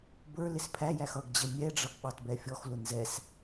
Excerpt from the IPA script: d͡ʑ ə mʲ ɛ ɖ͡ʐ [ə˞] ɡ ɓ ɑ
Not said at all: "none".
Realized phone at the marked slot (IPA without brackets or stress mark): ʌ